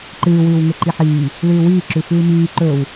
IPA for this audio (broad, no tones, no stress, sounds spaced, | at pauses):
ǃ ɨː w ʉː w ŋ e ǃ i ħ iː | l ʉː w iː ǁ ʉ f ɨː m iː ǃ ɵ w